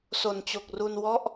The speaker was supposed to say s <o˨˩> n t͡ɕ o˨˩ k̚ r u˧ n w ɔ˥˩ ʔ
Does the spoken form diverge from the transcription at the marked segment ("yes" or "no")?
no